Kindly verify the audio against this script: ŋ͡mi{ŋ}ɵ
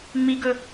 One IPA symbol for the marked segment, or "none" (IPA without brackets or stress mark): ɡ